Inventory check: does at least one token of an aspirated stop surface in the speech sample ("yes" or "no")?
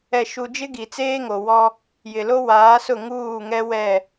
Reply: no